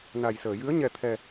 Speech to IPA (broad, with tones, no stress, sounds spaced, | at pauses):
n a˨˩ j s əː˨˩˨ j ɨ˧˥ ə̯ ɲ ɛ˧ t̪ʰ ɛ˧